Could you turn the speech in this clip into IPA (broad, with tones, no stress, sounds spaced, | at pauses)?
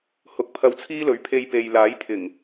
h ʊ˨˥ k̚ pʰ ɐ˧ w t͡sʰ iː˥ l ɵ˨˥ ɥ pʰ e˧ j p e˨ j l aː˨˥ j t̪ʰ ɪ˨˩ ŋ